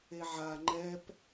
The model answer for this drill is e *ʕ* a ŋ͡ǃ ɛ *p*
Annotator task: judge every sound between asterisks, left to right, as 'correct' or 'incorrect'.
correct, correct

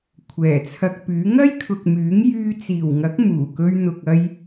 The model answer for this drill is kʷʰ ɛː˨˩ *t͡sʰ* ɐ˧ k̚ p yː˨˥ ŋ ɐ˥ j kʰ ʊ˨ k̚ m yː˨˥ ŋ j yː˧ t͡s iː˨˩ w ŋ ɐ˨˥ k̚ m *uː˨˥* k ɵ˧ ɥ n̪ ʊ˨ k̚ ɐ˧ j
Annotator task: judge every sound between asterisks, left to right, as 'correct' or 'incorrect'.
correct, incorrect

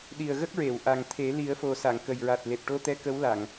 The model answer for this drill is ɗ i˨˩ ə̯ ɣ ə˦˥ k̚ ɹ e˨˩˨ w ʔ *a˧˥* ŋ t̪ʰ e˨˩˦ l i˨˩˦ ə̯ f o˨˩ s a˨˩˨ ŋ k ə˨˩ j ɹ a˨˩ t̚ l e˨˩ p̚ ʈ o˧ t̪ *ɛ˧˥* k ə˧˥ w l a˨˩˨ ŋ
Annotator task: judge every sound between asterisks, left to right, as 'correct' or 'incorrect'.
incorrect, correct

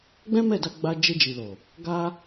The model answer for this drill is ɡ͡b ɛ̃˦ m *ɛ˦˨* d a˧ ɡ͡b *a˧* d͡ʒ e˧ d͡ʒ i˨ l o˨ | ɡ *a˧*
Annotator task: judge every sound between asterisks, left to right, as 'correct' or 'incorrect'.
correct, correct, correct

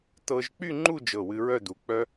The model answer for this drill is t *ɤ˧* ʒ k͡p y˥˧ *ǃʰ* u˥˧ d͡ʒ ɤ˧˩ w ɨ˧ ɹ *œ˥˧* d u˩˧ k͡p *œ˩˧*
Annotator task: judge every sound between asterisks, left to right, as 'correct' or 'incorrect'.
correct, incorrect, correct, incorrect

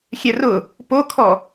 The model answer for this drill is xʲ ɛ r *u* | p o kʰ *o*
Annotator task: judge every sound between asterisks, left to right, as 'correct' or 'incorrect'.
incorrect, incorrect

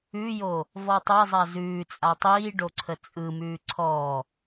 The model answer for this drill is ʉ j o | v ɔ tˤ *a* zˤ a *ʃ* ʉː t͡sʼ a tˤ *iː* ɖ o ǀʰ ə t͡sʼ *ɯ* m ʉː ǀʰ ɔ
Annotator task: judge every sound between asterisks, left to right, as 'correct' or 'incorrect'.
correct, incorrect, correct, correct

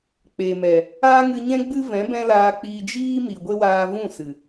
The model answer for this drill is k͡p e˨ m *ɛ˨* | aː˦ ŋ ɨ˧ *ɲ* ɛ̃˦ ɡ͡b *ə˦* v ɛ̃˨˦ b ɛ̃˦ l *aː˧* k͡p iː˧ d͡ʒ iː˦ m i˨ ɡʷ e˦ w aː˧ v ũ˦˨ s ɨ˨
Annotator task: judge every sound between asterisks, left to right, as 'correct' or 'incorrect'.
correct, correct, incorrect, correct

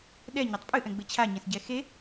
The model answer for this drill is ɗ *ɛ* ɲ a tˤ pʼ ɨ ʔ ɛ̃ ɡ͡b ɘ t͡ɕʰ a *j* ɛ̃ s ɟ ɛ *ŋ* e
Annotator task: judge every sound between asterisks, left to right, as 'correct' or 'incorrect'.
correct, incorrect, incorrect

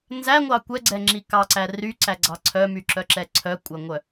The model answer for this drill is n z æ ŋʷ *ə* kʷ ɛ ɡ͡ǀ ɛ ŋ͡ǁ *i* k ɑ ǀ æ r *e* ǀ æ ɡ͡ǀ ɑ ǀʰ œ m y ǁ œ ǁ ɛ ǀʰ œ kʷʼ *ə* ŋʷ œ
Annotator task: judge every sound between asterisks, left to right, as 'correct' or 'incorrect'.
incorrect, correct, incorrect, incorrect

